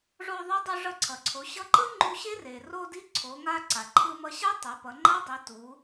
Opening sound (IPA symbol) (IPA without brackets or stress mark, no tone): ʐ